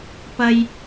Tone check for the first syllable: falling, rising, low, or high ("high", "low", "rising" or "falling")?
high